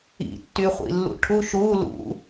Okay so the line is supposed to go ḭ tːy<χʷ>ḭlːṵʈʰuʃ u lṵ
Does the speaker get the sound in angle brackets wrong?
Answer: no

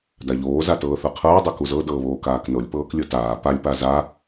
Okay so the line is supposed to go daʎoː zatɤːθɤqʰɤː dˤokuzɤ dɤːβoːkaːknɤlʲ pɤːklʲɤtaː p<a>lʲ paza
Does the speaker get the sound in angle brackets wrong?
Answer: no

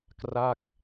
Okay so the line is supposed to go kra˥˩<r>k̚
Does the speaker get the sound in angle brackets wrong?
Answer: yes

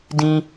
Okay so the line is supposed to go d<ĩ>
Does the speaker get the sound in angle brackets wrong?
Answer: no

